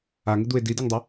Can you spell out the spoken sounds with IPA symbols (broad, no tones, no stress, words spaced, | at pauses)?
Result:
aŋɪd̪ue̯ dideŋdˤɪ